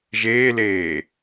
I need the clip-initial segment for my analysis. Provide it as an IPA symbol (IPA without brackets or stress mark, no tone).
ʒ